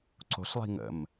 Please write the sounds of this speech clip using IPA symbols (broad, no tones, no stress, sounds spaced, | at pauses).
ǀ o̤ ɬ lˠ i̤ ŋ ə̰ m